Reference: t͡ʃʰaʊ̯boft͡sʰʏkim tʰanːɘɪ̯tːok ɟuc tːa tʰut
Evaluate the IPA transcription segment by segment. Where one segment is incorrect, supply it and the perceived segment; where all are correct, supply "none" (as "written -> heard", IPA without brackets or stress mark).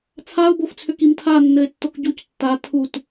t͡ʃʰ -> t͡sʰ